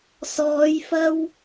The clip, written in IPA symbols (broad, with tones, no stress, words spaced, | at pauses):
sɔː˨˧jfɐ˧w